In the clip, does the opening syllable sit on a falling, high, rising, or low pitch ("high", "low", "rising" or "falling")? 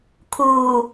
low